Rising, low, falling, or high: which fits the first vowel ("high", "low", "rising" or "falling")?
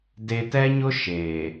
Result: high